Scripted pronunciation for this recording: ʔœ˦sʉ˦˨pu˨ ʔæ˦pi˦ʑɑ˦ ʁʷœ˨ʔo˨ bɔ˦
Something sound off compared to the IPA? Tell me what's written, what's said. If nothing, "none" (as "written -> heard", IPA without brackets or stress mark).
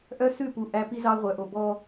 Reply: ʑ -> z